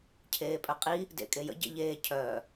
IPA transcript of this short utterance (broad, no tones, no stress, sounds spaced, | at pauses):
cʰ eː pʼ œ qʼ i | d ḛ kʼ e j ə̰ ɟ ḛ ʎ eː cʰ œː